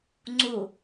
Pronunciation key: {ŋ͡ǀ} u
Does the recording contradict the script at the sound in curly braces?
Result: no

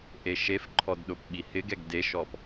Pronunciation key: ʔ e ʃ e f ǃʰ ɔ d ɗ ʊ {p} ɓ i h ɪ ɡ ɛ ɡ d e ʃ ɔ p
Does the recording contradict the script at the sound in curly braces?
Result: no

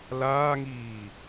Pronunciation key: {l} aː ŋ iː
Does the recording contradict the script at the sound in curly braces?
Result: no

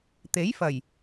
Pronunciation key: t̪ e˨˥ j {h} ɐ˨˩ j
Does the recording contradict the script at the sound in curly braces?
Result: yes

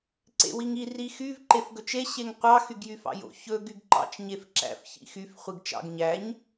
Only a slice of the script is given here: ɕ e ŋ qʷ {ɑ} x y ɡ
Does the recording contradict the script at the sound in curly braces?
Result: no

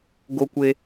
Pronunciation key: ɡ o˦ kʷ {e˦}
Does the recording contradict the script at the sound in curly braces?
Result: no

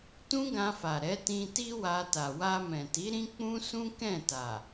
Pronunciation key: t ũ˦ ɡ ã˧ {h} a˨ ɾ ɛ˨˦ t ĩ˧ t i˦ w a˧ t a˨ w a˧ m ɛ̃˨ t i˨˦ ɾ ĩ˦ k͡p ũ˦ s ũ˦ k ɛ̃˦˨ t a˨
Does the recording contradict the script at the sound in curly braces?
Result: yes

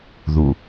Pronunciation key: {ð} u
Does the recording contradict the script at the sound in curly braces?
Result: no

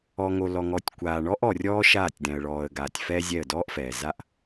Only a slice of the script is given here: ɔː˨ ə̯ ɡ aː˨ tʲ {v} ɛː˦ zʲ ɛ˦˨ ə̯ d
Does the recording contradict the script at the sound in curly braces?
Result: yes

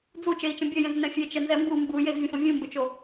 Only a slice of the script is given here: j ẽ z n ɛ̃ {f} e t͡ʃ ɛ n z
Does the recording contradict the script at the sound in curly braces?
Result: yes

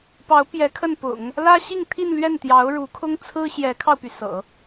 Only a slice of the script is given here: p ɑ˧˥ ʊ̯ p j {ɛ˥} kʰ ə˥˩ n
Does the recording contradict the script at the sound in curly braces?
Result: yes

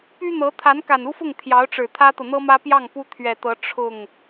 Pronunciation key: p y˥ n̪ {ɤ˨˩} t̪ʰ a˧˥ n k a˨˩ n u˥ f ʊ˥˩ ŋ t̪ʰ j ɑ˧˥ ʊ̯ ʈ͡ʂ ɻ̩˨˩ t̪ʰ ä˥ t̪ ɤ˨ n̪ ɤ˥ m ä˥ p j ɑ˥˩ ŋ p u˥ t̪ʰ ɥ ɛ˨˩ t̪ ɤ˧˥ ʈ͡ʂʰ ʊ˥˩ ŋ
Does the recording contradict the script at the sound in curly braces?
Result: yes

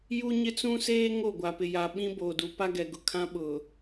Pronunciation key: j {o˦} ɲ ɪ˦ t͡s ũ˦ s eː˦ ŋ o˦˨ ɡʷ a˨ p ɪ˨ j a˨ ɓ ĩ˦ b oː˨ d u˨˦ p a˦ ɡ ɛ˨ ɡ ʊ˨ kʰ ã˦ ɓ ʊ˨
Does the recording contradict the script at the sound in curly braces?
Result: yes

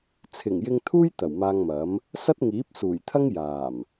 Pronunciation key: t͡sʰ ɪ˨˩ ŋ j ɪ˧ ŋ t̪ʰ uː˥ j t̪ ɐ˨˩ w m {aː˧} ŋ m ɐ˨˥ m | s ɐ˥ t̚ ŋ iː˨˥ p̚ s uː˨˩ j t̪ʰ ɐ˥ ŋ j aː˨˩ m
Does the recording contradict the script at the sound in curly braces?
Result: no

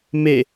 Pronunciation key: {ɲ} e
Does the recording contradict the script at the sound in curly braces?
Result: yes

